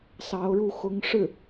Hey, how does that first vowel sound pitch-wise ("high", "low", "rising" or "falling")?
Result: rising